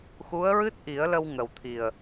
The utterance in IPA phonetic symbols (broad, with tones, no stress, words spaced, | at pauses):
xu˧˥ə̯ɹɨ˦˥t̚ʔi˨˩˦ə̯lə˧w ŋə˨˩wt̪ʰi˨˩ə̯